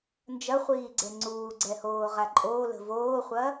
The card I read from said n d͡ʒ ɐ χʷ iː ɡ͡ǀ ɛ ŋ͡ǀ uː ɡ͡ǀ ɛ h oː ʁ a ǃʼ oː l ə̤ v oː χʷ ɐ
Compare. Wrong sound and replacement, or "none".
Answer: none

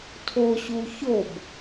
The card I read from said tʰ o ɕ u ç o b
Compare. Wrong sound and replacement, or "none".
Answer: none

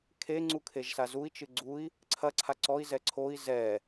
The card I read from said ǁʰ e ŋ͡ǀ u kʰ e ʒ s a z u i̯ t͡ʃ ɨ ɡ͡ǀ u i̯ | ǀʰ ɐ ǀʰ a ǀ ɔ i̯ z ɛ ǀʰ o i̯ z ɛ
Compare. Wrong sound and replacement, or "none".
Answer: ǁʰ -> kʰ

